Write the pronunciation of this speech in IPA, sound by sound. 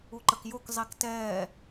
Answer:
u ǃ ə k j o k zˤ i k t ɛː

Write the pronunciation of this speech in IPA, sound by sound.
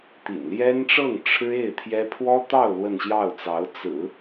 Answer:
t̪ ḭ˨˩ n l j ɛ˥ n ʈ͡ʂ ɤ˥˩ ŋ ʈ͡ʂʰ ɻ̩˥ e˥˩ ɪ̯ t̪ʰ j ɛ˥ pʰ w ɔ˥ t̪ ɑ˥˧ ʊ̯ l w ə˥˧ n ɕ j ɑ˥˩ ʊ̯ t͡s ɑ˧˥ ʊ̯ t͡s ɹ̩˨˩˦

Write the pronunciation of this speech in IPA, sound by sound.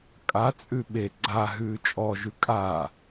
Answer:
kʼ a t͡sʼ ʉ ɓ e ɡ͡ǀ a ɦ ʉː t͡ʃʼ ɔ ʒ ʉ kʼ a

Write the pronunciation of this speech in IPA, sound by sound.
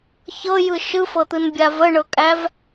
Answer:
ç ɤ j ɯ ʃ ɯ f ɤ t̪ ɯ n bʲ a v ə ɳ ɤ kʼ æ v

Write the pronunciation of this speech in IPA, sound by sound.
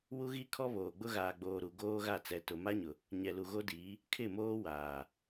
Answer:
w u˦ ɣ i˦ kʰ ɔ˦ β oː˨ ɡ͡b ʊ˦ ɣ aː˨ ɡ͡b oː˨ ɾ u˨ ɡ oː˦ ɣ a˦˨ t͡s ɛ˨ t ʊ˨ m a˦ ɲ ʊ˨ | ɲ ɛ˨ l u˨ ɣ o˦ d iː˨˦ | kʰ ɪ˦˨ m oː˦ w aː˨

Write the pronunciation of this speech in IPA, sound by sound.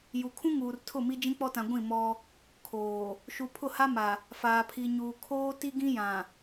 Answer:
j u˨ kʰ ũ˦ ŋ uː˨ r tʰ ʊ˦˨ m i˦ d͡ʒ ĩ˦ k͡p ɔ˦ t ã˨ ɡʷ ĩ˦˨ m ɔ˦ | kʰ oː˨ | ʃ u˨ pʰ ʊ˦˨ h a˦ m a˨ | f aː˨ pʰ i˨ ɲ uː˨ kʰ oː˦ t i˦ ɡ ĩ˦ j ã˨

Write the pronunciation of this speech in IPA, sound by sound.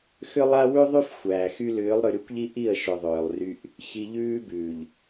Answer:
x ʏ˦ lˠ a˦ w ʉ˦ ðˤ y˦ f xʷ æː˨ x y˦ l ʏː˨˦ lˠ ɾ ʏ˨ ɾ y˦ kʷ ʎ i˦ ʔ i˦˨ ə̯ ʃ ʏ˨ ðˤ ʏː˨ lˠ r y˦ ʔ | ç i˨ ʎ ʉː˦ b ʉː˨ ʎ

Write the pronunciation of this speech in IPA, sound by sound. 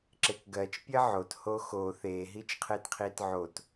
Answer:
ǁ e k ɡ ɜ t͡ʃ pʲ ɜ ʕ o t h o x o θ e ɦ i t͡ʃ qʰ e t qʰ i t ʕ o t

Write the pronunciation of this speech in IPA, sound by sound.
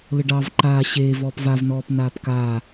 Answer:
l ə ɖ ɑ v ǃ aː ɕ eː v ɔː p v a v n ɔː p n aː p k aː

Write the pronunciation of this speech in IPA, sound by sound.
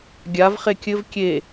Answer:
ɡʲ a v χ e kʲ ɘ v kʲ e

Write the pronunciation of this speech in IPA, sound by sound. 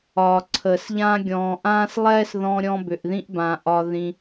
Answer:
ɒː˨ ǀʰ əː˨ s ʎ ãː˦ ɡʲ ɔ̃ː˨ ʔ ãː˦ s lˠ ɛː˦ s ð ɔ̃ː˧ ɾʲ ɔ̃˧ b ʏ˨ ʔ ð ĩ˧ ʔ b ãː˨ ʔ ɒ˧ ð ĩ˧

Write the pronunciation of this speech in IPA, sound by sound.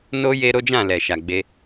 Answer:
n o˦ j e˦ ɾ o˦ d͡ʒ ã˦˨ l ɛ˨ ʃ a˨ ɡ͡b e˧

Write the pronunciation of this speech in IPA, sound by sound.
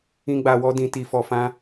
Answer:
ĩ˦ ɡ͡b a˧ w ɔ˦ d ĩ˧ t i˧ f ɔ˧ f ã˦

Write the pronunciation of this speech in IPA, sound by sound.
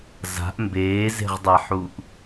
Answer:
z a̤ ʔ m b eː z e̤ ʁ dˤ a ħ u ʔ

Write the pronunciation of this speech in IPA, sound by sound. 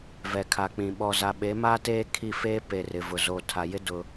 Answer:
v ɛ˨ kʰ a˨ k͡p ĩ˨ ɓ ɔ˨ z a˨ ɓ e˨˦ m aː˦ t eː˦ kʰ i˦˨ f eː˦ p e˨ r ɪ˨ v ʊ˨ z oː˨ tʰ a˨ j ɪ˦ d ʊ˦

